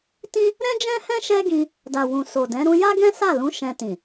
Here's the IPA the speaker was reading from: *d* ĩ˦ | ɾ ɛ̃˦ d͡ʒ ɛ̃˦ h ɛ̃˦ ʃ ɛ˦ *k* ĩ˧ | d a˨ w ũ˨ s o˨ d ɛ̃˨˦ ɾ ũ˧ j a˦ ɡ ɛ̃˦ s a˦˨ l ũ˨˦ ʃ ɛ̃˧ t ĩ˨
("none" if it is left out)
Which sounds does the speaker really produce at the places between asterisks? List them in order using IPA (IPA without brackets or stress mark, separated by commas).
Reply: t, ɡ